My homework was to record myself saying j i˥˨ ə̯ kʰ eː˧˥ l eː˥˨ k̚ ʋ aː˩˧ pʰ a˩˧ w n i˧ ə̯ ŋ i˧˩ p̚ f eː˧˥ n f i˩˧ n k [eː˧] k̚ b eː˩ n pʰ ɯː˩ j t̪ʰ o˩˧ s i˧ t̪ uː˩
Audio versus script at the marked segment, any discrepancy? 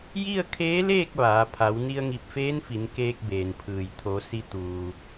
no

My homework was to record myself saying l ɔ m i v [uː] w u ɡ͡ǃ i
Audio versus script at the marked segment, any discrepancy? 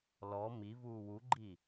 no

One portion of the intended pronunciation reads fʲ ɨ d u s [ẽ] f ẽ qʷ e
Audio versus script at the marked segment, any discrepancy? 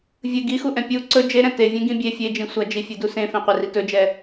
no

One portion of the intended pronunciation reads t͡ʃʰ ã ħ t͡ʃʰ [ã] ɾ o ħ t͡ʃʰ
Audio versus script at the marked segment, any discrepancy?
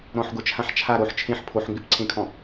yes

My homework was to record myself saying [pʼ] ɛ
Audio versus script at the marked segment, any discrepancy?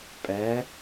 no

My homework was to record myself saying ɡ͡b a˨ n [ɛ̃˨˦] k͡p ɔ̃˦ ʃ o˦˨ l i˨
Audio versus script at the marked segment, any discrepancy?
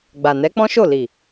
yes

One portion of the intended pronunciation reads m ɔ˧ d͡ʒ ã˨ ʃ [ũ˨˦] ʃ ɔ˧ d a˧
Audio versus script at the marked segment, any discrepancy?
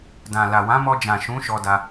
no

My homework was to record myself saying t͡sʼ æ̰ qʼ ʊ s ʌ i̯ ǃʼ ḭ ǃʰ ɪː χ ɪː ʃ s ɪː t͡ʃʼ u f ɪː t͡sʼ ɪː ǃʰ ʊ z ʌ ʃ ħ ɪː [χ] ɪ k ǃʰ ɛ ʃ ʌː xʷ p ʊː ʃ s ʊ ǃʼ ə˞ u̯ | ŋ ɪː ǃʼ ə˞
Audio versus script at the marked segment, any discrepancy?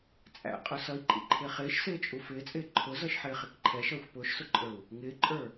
no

